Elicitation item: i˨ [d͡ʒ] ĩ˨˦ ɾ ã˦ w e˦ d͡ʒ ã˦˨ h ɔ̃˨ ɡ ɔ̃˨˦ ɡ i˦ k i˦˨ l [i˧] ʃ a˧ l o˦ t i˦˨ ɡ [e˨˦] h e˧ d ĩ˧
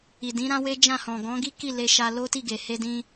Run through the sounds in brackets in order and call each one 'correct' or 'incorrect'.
incorrect: d, incorrect: e˧, incorrect: e˨

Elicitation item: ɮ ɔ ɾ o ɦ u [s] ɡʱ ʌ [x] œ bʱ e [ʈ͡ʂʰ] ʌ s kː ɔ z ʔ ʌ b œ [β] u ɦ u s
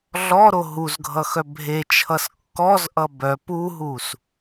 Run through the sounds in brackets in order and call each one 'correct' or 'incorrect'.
incorrect: z, correct, incorrect: t͡ʃʰ, incorrect: p

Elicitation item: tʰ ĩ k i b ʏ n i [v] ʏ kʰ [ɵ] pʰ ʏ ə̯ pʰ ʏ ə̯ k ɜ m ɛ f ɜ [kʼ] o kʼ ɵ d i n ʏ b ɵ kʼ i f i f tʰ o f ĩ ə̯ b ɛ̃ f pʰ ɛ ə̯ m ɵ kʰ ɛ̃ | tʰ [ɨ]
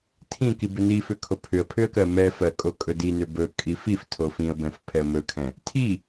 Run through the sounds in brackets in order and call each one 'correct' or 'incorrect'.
incorrect: f, incorrect: o, correct, incorrect: i

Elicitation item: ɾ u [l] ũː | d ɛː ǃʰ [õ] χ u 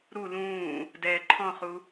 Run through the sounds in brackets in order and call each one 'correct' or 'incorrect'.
correct, incorrect: ɔ̃

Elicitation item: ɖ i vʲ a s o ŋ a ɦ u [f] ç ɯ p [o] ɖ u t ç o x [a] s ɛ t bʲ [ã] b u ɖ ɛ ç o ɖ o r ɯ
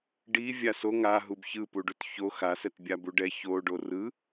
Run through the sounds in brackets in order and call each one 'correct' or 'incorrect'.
incorrect: b, incorrect: u, correct, incorrect: a

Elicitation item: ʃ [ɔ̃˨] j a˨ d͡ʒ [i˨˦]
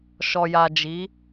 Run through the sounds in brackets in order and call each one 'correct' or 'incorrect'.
incorrect: ɔ˨, correct

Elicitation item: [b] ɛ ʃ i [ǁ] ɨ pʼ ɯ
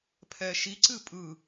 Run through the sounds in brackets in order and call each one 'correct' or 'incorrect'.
incorrect: pʰ, incorrect: ǀ

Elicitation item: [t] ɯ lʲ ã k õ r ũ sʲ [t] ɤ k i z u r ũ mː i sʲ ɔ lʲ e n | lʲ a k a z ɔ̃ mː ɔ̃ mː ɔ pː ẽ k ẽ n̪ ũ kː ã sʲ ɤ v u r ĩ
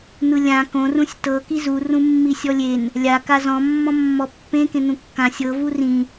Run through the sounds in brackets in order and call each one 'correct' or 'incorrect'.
incorrect: n̪, correct

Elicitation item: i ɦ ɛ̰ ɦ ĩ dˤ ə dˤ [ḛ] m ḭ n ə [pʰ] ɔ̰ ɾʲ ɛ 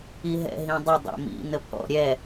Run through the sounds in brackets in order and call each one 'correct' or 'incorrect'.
correct, correct

